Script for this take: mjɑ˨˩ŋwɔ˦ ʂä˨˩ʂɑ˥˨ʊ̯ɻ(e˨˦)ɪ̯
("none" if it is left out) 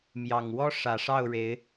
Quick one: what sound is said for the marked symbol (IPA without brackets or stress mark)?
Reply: e˨˦